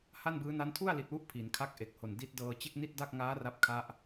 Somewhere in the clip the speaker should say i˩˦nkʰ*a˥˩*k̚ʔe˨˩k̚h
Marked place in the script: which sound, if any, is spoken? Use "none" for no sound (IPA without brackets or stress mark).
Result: a˥˩